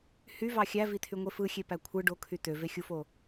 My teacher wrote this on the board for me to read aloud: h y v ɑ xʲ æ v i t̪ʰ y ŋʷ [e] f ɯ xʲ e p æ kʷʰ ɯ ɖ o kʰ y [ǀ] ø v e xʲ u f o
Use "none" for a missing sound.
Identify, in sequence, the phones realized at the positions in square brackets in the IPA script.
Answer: e, t̪

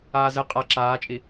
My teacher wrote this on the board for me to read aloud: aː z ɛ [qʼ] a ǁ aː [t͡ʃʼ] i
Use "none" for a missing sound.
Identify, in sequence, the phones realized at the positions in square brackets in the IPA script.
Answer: qʼ, t͡ʃʼ

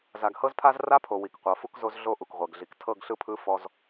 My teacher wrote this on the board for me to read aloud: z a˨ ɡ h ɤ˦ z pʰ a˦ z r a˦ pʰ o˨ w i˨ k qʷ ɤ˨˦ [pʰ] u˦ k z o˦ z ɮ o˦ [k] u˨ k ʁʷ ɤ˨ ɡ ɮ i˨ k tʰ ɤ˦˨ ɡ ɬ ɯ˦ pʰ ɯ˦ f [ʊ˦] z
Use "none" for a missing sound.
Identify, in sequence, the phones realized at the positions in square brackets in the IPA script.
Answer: f, ʔ, ɔ˦

